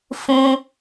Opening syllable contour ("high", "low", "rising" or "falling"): high